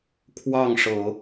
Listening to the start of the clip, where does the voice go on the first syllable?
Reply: falling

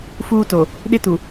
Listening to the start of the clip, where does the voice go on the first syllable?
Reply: high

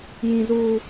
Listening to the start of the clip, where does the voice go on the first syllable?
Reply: high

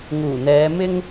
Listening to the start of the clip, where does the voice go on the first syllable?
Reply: low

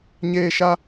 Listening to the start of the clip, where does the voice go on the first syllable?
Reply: high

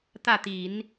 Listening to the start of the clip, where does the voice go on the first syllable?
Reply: falling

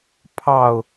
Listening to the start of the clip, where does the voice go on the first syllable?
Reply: falling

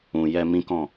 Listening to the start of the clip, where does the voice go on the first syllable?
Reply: low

